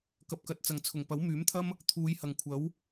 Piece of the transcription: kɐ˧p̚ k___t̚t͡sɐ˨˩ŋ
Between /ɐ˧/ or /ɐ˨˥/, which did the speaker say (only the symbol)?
ɐ˨˥